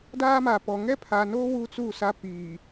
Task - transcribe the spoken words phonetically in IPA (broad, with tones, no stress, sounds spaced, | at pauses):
d aː˦ m a˨ p ɔ˨ ŋ ɛ˦ pʰ a˨ n oː˦ w u˦ t͡s u˦˨ s a˦ p iː˨